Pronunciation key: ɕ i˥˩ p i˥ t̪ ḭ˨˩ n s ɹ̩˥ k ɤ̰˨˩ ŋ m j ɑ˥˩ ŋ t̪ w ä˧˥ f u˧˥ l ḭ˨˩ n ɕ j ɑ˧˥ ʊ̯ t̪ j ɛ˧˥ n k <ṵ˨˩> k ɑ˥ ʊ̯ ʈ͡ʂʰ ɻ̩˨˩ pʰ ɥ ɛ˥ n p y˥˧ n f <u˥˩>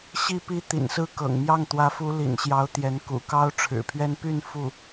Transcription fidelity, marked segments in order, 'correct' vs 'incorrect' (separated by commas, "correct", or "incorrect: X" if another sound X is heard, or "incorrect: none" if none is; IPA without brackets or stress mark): correct, correct